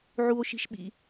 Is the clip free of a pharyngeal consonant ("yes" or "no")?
no